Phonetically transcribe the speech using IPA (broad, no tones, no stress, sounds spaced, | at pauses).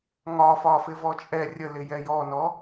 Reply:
ŋ ɒ f ɒ f ɪ v ɔ t͡ʃʼ ɛ rʲ ə l ɪ j ɛ j ɔ n ɔ